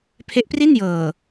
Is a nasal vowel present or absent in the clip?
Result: absent